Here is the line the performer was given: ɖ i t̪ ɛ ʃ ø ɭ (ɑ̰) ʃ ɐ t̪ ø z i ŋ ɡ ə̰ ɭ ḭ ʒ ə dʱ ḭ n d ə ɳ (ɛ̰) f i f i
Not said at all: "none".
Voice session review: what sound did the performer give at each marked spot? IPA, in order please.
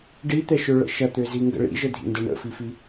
ə̰, ə̰

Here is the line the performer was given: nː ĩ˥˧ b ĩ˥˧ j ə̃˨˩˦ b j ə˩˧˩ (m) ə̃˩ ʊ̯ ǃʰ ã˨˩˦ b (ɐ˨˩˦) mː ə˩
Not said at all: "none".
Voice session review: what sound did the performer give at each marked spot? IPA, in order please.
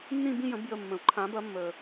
mː, ɐ˨˩˦

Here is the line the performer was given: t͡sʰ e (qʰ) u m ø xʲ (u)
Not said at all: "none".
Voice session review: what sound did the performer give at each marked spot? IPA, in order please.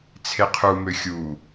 qʰ, u

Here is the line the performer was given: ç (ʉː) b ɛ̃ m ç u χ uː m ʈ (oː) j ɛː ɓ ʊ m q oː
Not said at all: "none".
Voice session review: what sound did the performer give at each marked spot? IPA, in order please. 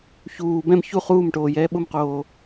uː, oː

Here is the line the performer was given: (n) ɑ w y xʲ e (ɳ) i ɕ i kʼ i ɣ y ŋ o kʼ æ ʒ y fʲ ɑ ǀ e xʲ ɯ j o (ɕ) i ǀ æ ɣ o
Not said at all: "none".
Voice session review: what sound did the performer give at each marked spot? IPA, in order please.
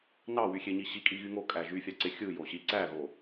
n, ɲ, ɕ

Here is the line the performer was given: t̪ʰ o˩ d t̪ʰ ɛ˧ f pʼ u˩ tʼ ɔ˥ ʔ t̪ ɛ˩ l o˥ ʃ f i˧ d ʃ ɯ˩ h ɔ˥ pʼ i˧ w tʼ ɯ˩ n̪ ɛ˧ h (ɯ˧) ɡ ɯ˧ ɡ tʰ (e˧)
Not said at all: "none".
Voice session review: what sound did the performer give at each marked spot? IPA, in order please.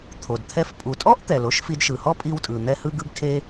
ɯ˧, e˧

